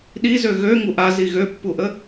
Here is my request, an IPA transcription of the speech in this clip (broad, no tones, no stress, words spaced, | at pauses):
ɗizø ɣø ŋuʔa ziɣøpːuʔə